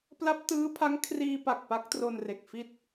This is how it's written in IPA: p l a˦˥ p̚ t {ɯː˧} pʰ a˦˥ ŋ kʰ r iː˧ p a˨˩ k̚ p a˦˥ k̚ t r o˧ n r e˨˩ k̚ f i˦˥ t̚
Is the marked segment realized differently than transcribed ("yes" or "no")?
yes